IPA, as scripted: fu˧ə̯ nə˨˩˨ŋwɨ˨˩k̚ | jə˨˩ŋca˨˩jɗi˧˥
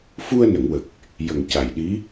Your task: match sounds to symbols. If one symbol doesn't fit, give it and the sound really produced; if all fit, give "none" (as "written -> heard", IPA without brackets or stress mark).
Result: ɨ˨˩ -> ə˨˩